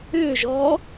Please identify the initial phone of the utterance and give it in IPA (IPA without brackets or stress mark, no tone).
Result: ʏː